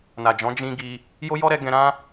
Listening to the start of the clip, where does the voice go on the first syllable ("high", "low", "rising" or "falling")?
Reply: low